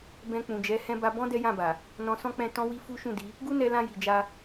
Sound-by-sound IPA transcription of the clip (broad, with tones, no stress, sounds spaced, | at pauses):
b ɛ̃˧ k͡p ũ˨ d͡ʒ ɛ˨˦ h ɛ̃˧ b a˧ b ɔ̃˦ d ɛ˦ j ã˦˨ b a˨ | n ɔ̃˧ s ɔ̃˦ k͡p ɛ̃˦˨ t ɔ̃˧ w i˧ f u˦ ʃ ũ˦˨ d i˨˦ | ɡ u˦ n ɛ˧ l ã˧ j i˨ d͡ʒ a˧